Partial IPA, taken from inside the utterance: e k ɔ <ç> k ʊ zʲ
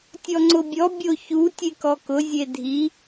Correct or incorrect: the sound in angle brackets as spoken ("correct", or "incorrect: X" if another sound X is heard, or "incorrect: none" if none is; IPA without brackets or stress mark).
incorrect: none